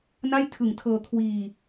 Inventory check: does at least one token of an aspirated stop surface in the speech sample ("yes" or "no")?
yes